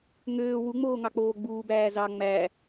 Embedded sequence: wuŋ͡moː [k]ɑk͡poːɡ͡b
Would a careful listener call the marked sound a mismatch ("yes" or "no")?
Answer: yes